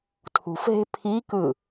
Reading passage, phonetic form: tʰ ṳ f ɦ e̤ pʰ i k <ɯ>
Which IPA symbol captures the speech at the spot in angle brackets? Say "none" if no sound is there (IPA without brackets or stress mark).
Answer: ɯ